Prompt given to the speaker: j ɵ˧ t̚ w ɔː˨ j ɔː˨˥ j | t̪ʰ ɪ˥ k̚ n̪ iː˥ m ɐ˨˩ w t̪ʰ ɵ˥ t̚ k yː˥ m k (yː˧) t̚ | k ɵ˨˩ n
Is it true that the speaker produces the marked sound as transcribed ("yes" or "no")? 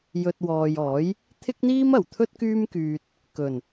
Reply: yes